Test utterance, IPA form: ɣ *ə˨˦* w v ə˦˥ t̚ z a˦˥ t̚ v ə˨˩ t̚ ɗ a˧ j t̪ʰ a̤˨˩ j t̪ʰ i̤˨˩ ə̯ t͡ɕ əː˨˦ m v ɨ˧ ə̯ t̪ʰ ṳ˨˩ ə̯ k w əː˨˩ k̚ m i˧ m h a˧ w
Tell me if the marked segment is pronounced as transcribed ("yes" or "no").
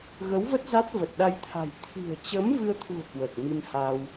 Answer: yes